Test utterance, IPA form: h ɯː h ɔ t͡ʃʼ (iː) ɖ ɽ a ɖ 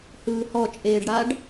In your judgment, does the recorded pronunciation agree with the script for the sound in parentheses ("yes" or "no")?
no